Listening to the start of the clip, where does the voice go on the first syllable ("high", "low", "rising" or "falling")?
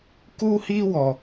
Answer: high